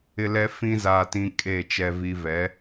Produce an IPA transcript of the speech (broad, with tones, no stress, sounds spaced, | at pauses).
ɪ˦ l ɛ˦ f ĩ˦ z aː˦ t ĩ˦ kʼ e˦˨ t͡ʃ ɛ˦ v i˦ v ɛ˨˦